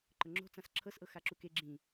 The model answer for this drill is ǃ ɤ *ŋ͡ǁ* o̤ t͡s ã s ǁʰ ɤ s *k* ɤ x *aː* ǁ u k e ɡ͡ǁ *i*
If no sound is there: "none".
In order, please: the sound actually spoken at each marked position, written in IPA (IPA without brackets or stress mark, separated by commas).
ŋ͡ǁ, ʔ, a, ĩ